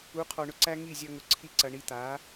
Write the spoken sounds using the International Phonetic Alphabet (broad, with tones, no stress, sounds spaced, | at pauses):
u˨˦ qʰ ɔ˨ ɳ ʊ˧ ǀ æ˦ ŋ i˦˨ zʲ ɐ˧ ŋ ʊ˨ ǀʰ i˧ ǀ ɐ˨ ɳ i˧ t̪ a˨˦